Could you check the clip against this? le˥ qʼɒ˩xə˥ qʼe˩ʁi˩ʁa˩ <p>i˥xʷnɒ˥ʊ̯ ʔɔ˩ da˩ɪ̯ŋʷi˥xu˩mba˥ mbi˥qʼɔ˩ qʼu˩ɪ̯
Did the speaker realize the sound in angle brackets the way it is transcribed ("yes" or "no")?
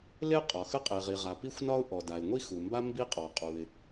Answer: yes